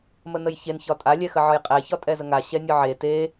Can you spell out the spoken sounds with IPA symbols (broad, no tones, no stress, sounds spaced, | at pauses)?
m ə n ə j ç e n ç ɒ tʼ a lʲ ɛ x ə ʕ ɒ j qʼ ɛ ç ɒ tʼ ɛ z ə ŋ a ɕ ɛ nʲ ɒ ʕ e t e